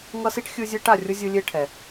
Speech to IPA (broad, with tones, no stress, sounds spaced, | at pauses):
ŋ ʌ˥ s i˥ ʈ xʲ ɯ˦ zʲ e˦ ʈ a˨ rʲ o˥ zʲ ɯ˦ lʲ e˥ ʈʰ ɛ˩